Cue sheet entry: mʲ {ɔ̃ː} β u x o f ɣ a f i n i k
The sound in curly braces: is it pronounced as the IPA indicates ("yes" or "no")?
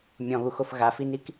no